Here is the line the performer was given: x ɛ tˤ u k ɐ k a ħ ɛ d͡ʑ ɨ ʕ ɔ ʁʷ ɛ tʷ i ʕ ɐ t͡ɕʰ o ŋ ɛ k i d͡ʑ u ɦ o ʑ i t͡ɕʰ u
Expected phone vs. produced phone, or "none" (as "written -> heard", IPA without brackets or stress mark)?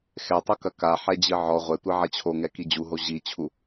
none